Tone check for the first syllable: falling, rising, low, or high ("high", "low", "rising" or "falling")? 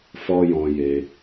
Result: high